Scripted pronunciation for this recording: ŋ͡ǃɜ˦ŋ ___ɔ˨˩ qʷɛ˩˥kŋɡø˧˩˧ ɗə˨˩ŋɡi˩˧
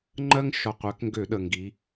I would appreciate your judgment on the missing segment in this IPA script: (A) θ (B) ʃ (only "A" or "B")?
B